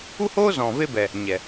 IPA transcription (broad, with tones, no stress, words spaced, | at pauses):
u˦hoː˦zɔ̃˨ ve˦bɛ˨ | ɲɛ˨